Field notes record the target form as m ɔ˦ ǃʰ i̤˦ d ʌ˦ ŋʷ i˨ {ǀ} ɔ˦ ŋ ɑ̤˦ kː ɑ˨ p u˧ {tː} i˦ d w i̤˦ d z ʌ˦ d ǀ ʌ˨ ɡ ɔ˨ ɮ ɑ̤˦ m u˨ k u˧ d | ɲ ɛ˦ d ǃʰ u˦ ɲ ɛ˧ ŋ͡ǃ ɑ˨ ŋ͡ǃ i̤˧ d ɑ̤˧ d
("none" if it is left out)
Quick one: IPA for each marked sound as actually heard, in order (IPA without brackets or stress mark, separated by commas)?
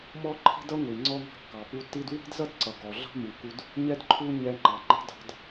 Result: ŋ͡ǀ, tː